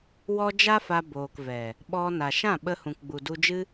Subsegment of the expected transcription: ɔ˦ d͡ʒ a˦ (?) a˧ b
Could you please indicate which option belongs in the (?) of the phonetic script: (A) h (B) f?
B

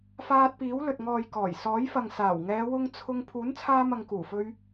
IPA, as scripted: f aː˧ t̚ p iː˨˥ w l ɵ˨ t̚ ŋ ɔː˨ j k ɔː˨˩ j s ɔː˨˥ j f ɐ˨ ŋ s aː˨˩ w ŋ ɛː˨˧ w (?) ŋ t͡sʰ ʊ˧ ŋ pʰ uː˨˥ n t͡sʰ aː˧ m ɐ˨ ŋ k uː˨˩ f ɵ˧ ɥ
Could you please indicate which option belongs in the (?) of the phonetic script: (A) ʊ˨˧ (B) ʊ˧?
B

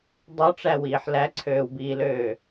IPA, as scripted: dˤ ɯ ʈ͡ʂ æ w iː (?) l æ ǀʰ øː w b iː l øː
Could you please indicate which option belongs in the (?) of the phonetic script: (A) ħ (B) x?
A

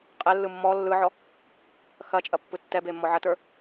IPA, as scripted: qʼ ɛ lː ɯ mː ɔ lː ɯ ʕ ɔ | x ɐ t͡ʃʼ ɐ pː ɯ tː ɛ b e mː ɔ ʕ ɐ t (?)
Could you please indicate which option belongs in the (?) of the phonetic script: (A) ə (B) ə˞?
B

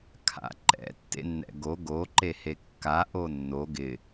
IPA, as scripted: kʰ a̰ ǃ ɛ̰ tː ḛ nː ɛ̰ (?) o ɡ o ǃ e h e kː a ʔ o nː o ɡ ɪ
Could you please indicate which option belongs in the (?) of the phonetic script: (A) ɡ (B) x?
A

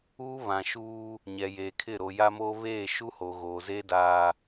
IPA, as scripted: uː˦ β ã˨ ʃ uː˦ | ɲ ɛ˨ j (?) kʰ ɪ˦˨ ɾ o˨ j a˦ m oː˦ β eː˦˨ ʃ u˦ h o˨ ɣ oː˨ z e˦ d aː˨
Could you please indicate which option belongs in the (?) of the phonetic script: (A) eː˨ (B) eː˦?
A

